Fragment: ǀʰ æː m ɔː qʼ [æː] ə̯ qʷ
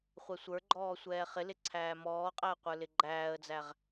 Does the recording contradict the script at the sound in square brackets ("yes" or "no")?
yes